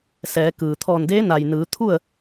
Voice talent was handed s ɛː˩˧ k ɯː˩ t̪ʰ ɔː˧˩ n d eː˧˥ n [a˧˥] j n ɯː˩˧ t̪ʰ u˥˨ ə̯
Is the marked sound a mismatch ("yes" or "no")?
yes